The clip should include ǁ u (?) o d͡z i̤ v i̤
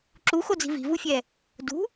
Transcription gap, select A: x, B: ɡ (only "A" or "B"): A